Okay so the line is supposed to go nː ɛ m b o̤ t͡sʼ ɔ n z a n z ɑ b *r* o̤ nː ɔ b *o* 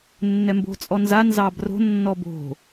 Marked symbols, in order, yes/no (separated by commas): yes, no